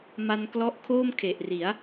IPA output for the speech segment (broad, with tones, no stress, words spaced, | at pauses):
ma˧nklɔ˦˥ʔkʰoː˥˩m kʰe˨˩ʔri˩˦a̯